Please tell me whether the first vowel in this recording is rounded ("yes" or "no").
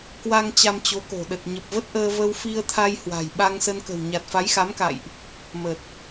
no